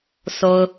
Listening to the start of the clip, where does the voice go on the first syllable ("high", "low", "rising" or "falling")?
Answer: low